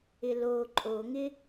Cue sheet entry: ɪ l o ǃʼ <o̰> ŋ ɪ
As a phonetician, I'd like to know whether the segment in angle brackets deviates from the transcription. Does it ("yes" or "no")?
yes